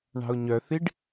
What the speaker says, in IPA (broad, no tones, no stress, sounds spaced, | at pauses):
ɳ ɑ̤ ʊ̯ ɲ œ θ i ɖ